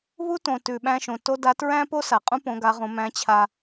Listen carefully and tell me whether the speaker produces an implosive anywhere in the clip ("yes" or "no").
yes